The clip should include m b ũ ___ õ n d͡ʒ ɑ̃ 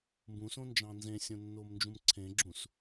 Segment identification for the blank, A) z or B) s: B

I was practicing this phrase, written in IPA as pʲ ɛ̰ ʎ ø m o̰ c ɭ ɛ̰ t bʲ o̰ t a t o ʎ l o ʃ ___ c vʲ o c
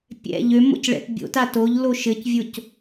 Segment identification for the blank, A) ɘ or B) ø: A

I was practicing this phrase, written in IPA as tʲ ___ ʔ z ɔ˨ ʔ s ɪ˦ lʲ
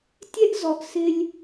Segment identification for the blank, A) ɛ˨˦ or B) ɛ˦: B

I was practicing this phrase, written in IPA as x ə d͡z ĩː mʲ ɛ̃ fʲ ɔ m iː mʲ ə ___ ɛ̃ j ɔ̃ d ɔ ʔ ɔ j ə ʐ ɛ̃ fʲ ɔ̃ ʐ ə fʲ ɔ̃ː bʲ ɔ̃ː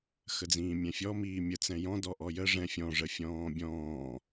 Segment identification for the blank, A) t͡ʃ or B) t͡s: B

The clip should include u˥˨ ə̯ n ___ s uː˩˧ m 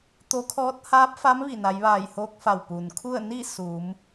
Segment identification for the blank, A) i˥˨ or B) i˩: A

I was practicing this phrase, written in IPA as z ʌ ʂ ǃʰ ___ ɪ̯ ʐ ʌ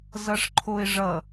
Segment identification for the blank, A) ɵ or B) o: B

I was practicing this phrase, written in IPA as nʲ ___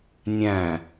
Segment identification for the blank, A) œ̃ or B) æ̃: B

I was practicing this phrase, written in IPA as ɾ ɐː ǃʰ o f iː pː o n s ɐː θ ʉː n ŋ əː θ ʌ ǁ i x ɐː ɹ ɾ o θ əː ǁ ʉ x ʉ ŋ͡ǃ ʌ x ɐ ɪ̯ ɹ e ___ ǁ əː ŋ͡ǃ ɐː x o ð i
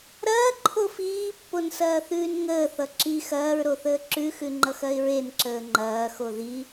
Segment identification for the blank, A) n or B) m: A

